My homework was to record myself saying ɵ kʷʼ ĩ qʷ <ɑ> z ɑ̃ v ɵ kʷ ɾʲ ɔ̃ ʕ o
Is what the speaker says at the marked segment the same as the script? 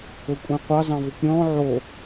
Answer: yes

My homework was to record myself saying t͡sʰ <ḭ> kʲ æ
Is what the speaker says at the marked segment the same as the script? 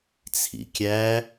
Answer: yes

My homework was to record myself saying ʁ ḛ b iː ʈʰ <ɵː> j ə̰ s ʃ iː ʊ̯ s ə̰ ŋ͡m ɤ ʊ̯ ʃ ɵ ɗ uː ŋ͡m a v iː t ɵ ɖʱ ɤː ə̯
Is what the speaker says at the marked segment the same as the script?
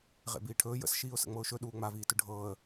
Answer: yes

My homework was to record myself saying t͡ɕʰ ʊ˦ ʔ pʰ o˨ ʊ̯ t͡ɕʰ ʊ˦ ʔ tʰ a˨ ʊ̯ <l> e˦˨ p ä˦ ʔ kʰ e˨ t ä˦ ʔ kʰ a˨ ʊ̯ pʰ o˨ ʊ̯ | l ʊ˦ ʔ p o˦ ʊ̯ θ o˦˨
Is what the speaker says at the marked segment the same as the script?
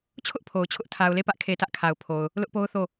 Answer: yes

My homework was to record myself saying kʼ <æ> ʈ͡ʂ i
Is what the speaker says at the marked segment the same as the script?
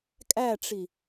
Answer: yes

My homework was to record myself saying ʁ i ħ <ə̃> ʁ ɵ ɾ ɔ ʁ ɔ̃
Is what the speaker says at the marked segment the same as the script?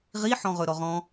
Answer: no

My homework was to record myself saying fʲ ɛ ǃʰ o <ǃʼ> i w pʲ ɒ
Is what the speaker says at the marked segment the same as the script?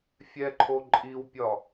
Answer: yes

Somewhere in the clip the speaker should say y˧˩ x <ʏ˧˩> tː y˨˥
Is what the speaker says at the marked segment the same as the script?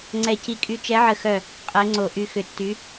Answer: yes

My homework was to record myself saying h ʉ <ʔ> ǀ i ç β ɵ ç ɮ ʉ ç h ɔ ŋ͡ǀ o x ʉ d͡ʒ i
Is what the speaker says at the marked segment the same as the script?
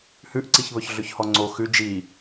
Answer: yes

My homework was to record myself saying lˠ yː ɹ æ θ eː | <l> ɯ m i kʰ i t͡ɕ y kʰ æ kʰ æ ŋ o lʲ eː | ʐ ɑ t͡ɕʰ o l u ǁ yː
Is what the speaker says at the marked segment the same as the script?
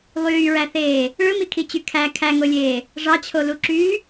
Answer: no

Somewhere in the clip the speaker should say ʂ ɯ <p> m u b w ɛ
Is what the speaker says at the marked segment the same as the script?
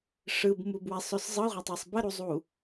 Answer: no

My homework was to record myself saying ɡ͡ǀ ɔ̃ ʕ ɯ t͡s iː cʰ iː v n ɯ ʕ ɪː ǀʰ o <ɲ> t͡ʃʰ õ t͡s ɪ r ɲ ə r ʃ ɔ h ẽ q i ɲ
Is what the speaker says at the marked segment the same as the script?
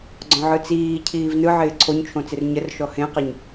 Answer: yes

